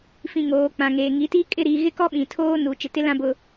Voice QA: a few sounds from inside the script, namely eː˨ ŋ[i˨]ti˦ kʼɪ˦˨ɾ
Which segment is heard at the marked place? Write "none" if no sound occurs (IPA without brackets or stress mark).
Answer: i˨˦